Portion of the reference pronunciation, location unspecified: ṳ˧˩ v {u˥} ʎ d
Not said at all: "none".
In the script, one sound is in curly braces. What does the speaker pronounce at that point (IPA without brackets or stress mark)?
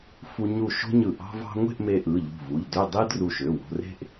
u˩˧˩